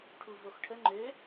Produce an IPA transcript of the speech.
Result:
ʈʰ u v o x ʈʰ ə ŋ͡ǃ ø

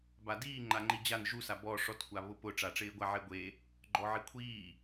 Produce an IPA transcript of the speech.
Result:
b a d iː ŋ͡ǃ a ŋ͡ǃ i d͡ʑ a n ʒ u s a b ɔ ʂ ɔ t kʷ a β ʊ p ʊ ʈ͡ʂ a ʈ͡ʂ ɪː ɡʷ a ʕ e ɡʷ e | ɡ͡ǃ ɔ ʕ i kʷʰ iː

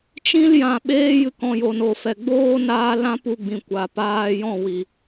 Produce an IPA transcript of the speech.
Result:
t͡ʃ ĩ˧ l j ã˨ ɓ eː˧ j ɨ˨ k ɔ̃˨ j o˨ n o˨ f ɛ˨ ɡ͡b oː˦ n aː˧ l ã˦ p u˧ ɡ͡b ĩ˨ kʷ a˨ p aː˧ j ɔ̃˦˨ w i˨

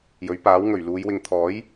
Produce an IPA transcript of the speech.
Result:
j ɵ˨˥ ɥ p aː˨˥ w ŋ ɵ˨˩ ɥ l uː˨˧ j w ɪ˨ ŋ t̪ʰ ɔː˨˥ j

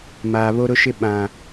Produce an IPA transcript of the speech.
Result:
m aː˨ β o˦ ɾ ʊ˦ ʃ ɪ˦ ɓ ã˨

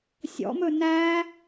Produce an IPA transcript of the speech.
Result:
sʲ ɔ̰ m ɵ n æ

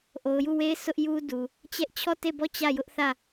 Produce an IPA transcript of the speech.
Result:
ʔ o˨ ʊ̯ j u˦˨ w e˦ ɪ̯ sʰ ʊ˦ ʔ j u˦ d u˨ | t͡ɕ ɛ˦ ʔ t͡ɕʰ ɔ˦˨ t e˦˨ b ɔ˦˨ t͡ɕ ä˦˨ j ʊ˦ ʔ θ ä˦˨

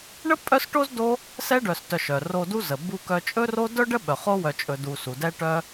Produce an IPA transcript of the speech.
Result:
ɳ ə˥ pʼ œ˦ s ʈ o˥ z d o˦ | s ɛ˦ ɖ œ˨ s t œ˨ ʃ œ˩ r o˨ d u˦ z ə˩ b u˨ k œ˨ t͡ʃʼ ɵ˦ r o˦ d œ˥ ɖ ə˥ ɓ œ˩ χ o˦ w œ˨ t͡ʃʼ ɵ˨ d u˨ s u˩ d ɛ˦ ʈ œ˦

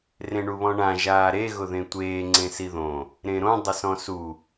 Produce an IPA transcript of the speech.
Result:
r ẽ ɳ u β ɔ̃ ɳ ã ʒ aː ɾ e ɣ ʊ ð ẽ tʷ eː ŋ͡ǀ ẽ s i ð õ | ɾ ẽ ɾ õ dˤ ɪ s ɔ̃ s u

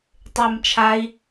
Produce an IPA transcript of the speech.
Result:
tˤ e m t͡ʃʰ a i̯

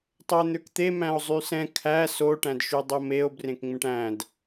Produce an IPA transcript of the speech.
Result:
tˤ ø e̯ n̪ ø k t̪ e m æ̃ o̯ zˤ y s ɛ̃ kʰ æ s o ʈ æ̃ d ʃ y dˤ o m e o̯ b r ẽ k ŋ͡m ẽ ʈ æ̃ d

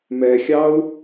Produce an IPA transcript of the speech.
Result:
m ɛ xʲ ɑ u̯

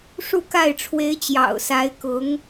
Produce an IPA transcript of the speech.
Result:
ʂ u˥˧ k a˥˩ ɪ̯ ʈ͡ʂʰ w e˧˥ ɪ̯ t͡ɕ j ɑ̰˨˩ ʊ̯ s a˧˥ ɪ̯ k ʊ˧˥ ŋ

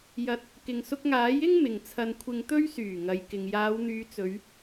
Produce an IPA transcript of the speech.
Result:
j ɐ˧ t̚ | k ɪ˨ ŋ s ʊ˧ k̚ ŋ aː˨˥ j ɪ˥ ŋ m ɪ˨ ŋ t͡sʰ ɐ˧ n kʷʰ ɪ˧ ŋ t̪ ɵ˥ ɥ s yː˨˩ ŋ ɐ˨ j k ɪ˨ ŋ j aː˨˧ w n̪ yː˨˧ t͡s ɵ˨˧ ɥ

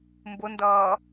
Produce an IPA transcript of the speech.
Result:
m b ʊ n d ʌː

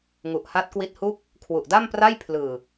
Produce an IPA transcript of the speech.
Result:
ŋ u˨˩ ʔ h a˦˥ t̚ k w i˦˥ t̚ h u˥˩ k̚ | kʰ w u˨˩ ʔ d a˥˩ m p r a˥˩ j pʰ l ɯː˨˩

